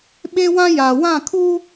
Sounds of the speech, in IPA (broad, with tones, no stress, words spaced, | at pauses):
ɓe˦wã˦ ja˨ wã˦˨kʰuː˦